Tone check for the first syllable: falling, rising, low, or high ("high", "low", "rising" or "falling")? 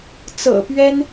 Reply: low